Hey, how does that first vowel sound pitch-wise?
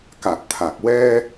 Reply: low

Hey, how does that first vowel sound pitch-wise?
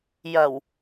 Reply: low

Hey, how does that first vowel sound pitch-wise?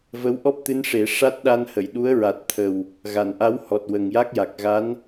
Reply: rising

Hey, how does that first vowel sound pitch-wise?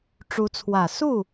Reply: rising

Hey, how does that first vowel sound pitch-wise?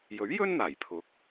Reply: rising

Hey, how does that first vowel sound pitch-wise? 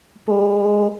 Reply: high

